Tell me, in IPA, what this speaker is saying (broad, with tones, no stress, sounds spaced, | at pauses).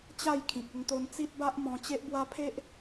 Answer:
t͡ɕ a˥˧ j kʰ ĩ˨ k̚ ə˧ ŋ t̪ o˧ n t͡s i˦ t̚ b a˦ ʔ m ɔ̃˧ t͡ɕ e˦ ʔ b w a˦ pʰ e˦ ʔ